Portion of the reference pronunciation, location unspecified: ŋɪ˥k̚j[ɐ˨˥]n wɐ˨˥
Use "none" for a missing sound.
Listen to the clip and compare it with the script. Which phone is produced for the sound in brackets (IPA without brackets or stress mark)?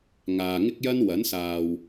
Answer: ɐ˥